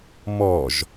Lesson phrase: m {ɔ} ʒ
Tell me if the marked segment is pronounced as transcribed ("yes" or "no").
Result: yes